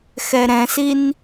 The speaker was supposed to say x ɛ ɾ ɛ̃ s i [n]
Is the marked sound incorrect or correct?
correct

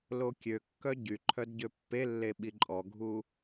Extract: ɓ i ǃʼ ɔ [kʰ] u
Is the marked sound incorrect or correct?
incorrect: ɡʱ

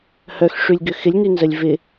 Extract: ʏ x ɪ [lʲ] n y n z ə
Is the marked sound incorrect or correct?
correct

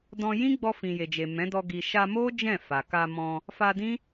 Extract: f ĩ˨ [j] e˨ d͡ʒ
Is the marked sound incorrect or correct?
correct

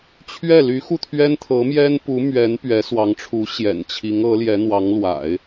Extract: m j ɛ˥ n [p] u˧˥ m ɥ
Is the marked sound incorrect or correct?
correct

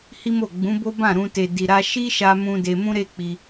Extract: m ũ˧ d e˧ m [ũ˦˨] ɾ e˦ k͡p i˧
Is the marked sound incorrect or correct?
incorrect: ũ˦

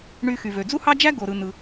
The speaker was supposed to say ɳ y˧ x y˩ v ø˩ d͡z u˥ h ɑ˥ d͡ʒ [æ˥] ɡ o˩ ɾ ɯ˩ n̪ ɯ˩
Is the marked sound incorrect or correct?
correct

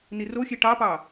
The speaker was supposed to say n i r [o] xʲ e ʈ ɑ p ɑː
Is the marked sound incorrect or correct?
correct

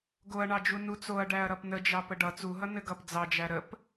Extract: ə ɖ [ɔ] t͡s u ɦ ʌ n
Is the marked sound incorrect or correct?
incorrect: ʌ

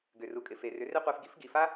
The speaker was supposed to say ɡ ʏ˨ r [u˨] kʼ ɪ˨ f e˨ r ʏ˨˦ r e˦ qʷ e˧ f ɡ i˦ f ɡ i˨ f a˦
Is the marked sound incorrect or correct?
correct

